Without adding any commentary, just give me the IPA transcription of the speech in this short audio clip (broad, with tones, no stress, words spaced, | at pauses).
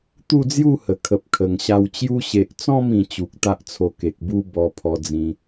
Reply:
t̪u˥˧d͡zju˥˧hə˨˩ kʰə˨p̚kʰə˨˩ŋɕa˧w t͡ɕju˧ɕe˨ʔt͡sɔ̃˥˧m ĩ˧ t͡ɕu˨k̚t̪a˦ʔt͡sʰo˧ ke˨k̚bu˦ bɔ˧pʰɔ˧d͡zĩ˧